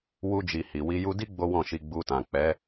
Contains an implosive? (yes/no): no